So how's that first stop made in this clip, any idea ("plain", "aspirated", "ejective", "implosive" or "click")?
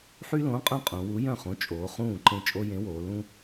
ejective